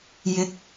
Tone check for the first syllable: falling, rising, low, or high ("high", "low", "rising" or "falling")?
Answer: rising